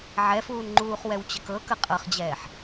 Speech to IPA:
ʕ ɛ f uː n ŋ͡ǃ uː χ w ɛ w t͡ɕ ə k ɤ k ə qʼ ɤ χ d͡ʑ ɛː ħ

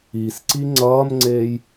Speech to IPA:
i s ǀ i ŋ͡ǀ ʌː m ŋ͡ǀ eː j

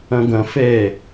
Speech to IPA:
ə̃ ɡ ə̃ f e

